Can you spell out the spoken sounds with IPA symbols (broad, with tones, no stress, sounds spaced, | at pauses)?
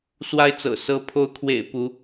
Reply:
s w a˥˨ ɪ̯ t͡s ɤ̰˨˩ s ɤ˨˦ pʰ o˨˦ ʊ̯ kʰ w ḛ˨˩ ɪ̯ p u˨˦